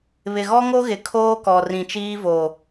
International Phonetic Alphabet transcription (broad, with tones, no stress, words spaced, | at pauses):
βɪ˨ɣɔ˦ŋo˦ɣɪ˨ kʰoː˦kɔ˨rĩ˨ t͡ʃiː˦vo˨